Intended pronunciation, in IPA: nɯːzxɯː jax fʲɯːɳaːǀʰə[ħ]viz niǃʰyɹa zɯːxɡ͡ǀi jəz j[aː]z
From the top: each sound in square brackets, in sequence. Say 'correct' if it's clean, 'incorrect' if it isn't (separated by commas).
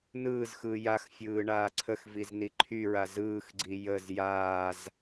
incorrect, correct